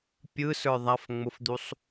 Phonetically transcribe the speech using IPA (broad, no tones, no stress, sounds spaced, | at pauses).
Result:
pʲ ɯ s ə˞ ðˤ a f ŋ͡m ʊ f d̪ u sˤ